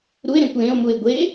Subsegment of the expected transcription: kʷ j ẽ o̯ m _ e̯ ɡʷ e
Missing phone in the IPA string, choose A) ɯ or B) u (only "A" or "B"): B